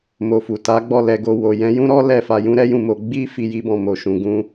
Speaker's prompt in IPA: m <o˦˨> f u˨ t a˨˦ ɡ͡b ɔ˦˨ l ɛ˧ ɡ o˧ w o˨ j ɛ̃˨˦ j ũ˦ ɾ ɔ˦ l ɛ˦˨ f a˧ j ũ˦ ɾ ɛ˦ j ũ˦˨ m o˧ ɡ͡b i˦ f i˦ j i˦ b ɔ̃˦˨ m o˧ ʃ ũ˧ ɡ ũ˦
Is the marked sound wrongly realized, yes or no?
yes